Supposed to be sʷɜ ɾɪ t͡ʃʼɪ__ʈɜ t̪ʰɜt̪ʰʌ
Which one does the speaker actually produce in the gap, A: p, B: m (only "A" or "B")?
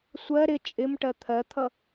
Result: B